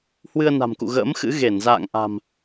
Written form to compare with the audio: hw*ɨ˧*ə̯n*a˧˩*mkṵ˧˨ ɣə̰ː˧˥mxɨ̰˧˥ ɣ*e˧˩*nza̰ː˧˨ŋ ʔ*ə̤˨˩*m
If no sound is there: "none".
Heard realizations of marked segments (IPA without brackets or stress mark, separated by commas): ɨ˧, a̤˨˩, e˧˩, a̤˨˩